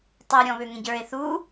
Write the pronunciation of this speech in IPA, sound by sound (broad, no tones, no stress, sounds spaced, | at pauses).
tˤ ɤ ɾʲ ɔ̃ β ø ŋ ẽ ɟ ə˞ e̯ θ u